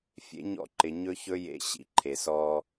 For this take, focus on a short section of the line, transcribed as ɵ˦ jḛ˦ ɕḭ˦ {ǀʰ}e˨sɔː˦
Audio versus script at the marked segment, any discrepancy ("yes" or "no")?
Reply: yes